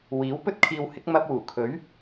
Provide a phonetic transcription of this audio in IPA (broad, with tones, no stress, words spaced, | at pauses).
wiː˨˥wpɵ˥t̚kʰiː˧whɪ˨˥k̚ mɐ˧p̚ wuː˨˩kʰɵ˨˥ɥ